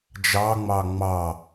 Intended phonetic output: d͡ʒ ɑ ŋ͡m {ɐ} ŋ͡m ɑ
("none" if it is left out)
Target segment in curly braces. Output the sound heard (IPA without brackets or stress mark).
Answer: ɑ